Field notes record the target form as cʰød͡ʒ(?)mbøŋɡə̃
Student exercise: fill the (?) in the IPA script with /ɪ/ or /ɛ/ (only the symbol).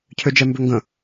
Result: ɛ